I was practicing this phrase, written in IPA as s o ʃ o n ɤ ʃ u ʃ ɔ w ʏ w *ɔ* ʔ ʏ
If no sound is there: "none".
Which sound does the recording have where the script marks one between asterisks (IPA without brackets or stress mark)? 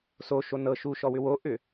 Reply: o